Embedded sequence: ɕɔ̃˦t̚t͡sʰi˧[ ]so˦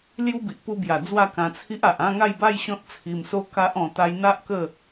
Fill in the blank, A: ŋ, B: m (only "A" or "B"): B